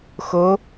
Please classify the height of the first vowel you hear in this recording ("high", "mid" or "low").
mid